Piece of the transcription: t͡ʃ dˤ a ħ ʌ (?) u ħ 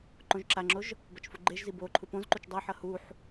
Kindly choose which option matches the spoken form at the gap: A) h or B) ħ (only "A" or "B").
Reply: A